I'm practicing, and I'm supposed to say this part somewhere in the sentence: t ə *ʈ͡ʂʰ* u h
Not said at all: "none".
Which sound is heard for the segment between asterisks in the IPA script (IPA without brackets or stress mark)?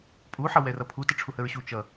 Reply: ʈ͡ʂʰ